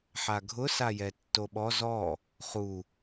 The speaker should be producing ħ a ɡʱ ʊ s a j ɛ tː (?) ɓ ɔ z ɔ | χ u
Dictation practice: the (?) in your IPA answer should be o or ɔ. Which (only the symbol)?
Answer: o